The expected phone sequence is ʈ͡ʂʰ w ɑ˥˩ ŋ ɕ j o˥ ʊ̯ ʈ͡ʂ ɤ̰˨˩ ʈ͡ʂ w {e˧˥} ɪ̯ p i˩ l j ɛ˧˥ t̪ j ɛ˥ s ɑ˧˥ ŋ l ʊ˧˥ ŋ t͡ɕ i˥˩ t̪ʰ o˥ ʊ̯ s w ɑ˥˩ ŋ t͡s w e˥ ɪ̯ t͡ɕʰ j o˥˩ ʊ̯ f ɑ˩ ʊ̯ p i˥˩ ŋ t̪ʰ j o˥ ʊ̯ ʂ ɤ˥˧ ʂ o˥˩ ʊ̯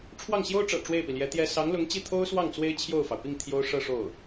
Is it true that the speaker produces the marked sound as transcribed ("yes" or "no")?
no